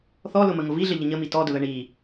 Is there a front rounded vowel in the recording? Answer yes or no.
no